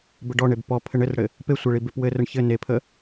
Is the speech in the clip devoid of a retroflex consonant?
no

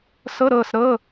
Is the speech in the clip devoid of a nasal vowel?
yes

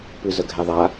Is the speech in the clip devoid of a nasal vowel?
yes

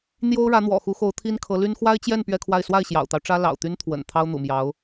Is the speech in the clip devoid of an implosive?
yes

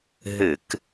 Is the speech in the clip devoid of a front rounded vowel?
yes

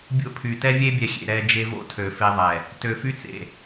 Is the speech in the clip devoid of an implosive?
yes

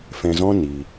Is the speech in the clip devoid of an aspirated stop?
yes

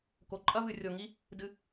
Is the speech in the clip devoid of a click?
no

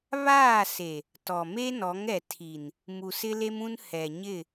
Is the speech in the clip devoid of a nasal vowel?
no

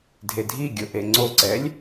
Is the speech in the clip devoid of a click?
no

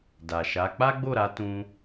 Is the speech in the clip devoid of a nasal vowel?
no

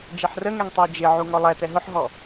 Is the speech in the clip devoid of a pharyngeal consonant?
no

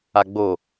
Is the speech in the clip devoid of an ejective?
yes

